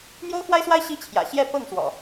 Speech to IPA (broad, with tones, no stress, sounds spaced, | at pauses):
n̪ j o˦ ʊ̯ x w a˦ ɪ̯ s w a˦ ɪ̯ ɕ i˦ t͡ɕʰ j ä̰˨˩ ɕ j ɛ˥˨ p ɤ˥˨ ŋ s w ɔ̰˨˩